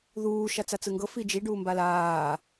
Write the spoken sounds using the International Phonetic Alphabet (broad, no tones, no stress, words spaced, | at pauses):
ðuː ʃat͡sat͡sɯŋɡɤ fid͡ʒi ɖuːmbalaː